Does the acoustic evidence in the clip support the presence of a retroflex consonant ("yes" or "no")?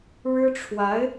yes